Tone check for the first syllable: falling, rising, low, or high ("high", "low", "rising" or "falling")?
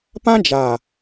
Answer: high